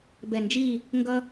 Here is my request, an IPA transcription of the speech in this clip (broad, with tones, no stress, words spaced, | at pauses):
bɛ˧˩nd͡ʒi˥˨ | ŋɡʌ˦